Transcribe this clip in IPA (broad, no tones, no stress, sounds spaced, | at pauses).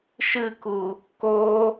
ʃ ɨ k u | k o